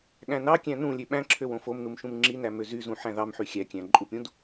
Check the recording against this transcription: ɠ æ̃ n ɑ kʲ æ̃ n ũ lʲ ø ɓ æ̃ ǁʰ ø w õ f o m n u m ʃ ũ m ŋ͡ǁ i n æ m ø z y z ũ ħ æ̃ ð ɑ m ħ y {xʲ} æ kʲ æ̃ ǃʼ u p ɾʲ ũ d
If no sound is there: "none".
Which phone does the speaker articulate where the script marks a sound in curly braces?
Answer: xʲ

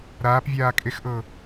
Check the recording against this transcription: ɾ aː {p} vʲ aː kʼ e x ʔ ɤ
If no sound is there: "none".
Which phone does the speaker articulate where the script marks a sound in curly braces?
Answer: p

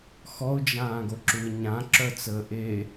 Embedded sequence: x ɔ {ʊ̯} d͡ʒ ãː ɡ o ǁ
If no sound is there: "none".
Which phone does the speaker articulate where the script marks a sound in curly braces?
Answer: ʊ̯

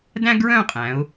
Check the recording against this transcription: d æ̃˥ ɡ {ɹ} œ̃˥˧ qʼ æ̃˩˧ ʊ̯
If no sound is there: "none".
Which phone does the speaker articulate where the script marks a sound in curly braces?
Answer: ɹ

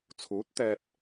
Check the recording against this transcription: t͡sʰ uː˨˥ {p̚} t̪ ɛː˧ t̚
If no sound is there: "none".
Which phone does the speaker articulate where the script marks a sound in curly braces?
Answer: t̚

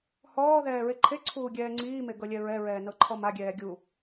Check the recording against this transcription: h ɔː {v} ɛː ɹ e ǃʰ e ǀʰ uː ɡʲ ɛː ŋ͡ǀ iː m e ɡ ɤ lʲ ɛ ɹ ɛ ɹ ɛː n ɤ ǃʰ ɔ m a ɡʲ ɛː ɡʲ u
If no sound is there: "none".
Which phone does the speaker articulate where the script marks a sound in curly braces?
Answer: ð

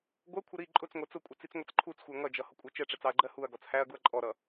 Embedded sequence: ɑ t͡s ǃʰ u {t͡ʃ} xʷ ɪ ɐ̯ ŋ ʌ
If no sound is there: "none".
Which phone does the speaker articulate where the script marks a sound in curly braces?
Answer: t͡s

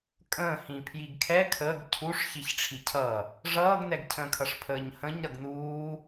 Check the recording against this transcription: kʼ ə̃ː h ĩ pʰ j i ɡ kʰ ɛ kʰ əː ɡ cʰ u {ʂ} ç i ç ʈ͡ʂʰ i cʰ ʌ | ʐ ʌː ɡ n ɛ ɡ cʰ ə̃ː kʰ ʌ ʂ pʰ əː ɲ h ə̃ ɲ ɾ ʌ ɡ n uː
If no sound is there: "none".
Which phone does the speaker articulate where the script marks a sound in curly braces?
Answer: ʂ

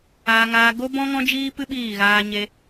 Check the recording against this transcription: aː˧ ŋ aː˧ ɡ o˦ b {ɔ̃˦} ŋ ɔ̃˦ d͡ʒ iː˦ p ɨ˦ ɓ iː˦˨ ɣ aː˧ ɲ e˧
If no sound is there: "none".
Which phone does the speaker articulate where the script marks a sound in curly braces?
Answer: ɔ̃˦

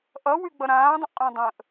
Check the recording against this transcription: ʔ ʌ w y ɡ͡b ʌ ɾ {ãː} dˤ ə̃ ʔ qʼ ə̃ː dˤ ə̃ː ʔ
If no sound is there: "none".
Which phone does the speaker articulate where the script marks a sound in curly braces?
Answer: ãː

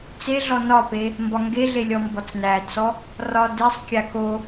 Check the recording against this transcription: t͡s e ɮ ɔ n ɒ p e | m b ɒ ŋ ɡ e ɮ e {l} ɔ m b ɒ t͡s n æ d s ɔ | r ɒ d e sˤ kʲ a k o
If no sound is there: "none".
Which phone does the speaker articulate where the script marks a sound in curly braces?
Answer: lʲ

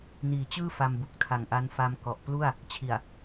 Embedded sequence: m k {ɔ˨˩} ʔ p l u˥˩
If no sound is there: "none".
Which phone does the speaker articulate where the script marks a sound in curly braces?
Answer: ɔ˨˩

